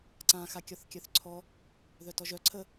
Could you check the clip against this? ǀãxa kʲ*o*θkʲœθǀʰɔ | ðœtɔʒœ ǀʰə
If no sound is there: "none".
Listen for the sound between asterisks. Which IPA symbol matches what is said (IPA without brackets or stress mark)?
ɔ